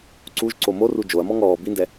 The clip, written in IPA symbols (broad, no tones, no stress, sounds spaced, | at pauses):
ǀ u ʒ ǀ o m o r u d͡ʒ o ɐ̯ m ɔ ŋ ɔː b i n d ɛ